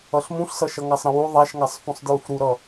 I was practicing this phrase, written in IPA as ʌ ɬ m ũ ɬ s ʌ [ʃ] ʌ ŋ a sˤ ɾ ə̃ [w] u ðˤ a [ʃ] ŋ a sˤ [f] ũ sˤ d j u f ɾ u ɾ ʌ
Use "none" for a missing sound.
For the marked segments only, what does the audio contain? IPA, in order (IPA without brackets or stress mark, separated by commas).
ʃ, w, ʃ, f